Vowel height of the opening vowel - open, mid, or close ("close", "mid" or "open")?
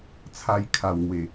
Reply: open